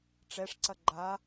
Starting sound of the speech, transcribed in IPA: ʈ͡ʂ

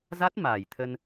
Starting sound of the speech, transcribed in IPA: z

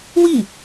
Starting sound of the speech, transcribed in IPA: w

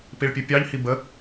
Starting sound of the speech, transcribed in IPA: p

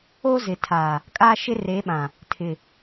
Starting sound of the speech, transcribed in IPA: o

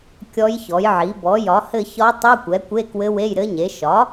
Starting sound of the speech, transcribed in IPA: kʲ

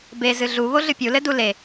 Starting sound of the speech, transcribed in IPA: b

